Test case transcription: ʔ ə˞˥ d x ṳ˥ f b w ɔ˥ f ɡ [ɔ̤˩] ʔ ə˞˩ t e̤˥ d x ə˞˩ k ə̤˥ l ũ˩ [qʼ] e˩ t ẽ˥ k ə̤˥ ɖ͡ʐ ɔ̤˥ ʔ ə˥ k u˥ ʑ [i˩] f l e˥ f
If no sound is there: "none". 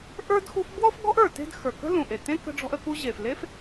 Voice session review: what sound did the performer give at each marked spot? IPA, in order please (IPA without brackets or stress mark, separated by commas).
ɔ̤˥, ʔ, e˩